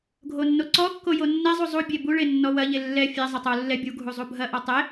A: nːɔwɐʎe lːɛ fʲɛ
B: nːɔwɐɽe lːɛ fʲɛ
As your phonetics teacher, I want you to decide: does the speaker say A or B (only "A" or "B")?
A